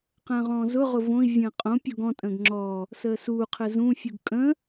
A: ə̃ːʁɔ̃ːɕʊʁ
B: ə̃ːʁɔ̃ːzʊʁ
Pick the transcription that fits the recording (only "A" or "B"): B